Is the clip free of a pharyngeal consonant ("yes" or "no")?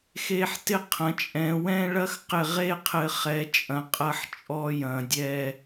no